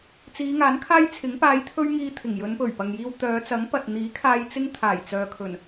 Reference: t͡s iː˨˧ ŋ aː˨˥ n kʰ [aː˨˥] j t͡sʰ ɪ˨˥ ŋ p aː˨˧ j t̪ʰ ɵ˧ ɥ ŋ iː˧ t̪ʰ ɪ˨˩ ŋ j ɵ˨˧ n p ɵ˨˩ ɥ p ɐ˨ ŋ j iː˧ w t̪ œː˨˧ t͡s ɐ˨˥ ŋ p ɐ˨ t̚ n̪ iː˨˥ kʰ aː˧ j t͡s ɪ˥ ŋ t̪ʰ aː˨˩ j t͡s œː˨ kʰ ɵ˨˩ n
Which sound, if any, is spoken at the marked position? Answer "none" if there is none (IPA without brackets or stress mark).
aː˥